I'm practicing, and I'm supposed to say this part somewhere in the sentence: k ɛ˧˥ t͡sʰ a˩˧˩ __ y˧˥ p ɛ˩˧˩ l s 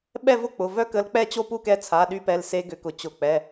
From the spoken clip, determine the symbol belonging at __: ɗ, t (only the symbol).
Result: ɗ